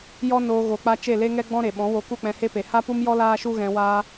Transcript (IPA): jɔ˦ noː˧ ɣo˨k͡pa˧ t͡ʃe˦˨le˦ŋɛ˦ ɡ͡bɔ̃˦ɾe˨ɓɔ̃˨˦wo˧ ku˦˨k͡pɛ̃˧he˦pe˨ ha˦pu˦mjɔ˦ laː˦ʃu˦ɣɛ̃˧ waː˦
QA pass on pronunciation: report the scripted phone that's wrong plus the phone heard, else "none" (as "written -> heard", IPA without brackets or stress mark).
none